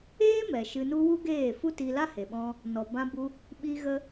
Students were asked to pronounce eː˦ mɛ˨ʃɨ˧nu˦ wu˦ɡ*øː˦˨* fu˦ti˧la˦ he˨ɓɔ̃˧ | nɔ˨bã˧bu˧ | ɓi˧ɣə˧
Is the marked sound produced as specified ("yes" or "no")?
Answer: no